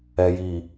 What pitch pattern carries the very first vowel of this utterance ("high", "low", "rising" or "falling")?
low